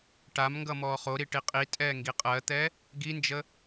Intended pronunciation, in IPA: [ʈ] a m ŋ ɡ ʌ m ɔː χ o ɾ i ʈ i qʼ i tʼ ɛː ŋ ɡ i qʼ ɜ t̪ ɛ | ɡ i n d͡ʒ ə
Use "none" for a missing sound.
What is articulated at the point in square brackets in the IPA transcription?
ʈ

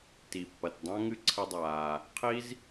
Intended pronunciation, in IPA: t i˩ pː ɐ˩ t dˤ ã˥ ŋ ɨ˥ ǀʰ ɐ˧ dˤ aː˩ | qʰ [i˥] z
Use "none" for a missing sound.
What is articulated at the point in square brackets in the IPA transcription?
i˥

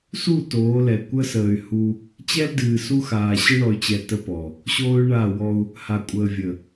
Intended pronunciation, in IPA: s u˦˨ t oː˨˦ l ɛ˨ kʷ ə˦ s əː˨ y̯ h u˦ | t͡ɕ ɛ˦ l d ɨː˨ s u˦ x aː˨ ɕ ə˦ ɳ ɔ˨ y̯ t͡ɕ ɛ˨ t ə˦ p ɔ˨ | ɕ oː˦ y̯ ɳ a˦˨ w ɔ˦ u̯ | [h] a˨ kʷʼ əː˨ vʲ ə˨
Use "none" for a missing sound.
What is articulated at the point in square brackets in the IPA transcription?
h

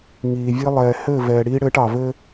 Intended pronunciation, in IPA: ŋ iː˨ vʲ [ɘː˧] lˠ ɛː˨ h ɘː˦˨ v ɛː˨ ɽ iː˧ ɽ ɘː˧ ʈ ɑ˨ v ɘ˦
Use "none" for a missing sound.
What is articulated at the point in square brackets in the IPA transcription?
ɘː˧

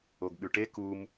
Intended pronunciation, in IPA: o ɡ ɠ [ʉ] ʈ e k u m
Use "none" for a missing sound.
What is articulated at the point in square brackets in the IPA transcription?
ʉ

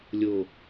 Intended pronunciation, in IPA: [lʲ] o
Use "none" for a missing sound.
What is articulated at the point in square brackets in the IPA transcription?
lʲ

